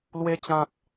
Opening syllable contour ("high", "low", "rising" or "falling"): high